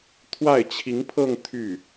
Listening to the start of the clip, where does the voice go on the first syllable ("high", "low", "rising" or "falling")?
falling